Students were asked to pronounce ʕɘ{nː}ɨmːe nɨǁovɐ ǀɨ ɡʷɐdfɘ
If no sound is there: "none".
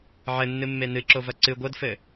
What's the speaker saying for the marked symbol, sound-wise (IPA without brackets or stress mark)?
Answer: nː